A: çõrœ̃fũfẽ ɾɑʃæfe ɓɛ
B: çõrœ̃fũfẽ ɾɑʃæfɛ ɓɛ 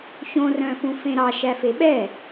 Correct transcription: A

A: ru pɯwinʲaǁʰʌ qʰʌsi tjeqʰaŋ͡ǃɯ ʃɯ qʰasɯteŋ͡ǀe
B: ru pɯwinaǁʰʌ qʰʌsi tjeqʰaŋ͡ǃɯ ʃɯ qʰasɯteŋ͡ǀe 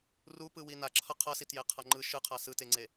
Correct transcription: B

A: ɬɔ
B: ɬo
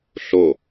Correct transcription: B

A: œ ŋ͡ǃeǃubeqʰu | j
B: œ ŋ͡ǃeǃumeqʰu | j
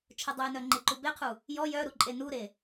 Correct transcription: A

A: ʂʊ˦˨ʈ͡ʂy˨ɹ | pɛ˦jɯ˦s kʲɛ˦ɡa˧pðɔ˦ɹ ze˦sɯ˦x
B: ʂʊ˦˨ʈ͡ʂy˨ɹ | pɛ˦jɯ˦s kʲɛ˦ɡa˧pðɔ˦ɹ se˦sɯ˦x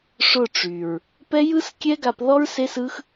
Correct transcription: B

